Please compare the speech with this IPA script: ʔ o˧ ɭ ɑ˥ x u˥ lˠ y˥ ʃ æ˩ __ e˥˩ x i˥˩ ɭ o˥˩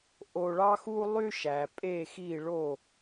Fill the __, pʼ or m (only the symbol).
pʼ